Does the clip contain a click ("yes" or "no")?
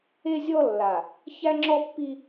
yes